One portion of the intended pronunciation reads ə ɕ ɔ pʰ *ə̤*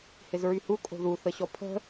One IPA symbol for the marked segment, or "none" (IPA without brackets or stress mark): ə̤